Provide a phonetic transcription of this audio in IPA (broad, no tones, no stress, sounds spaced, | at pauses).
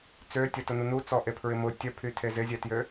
t͡s ø tʲ ɐ t ʊ n u n u t͡s ɔ ʔ e pʰ ɹ ɪ m ʊ tʲ œ pʰ y tʰ e z ɪ zʲ ɛ t j ø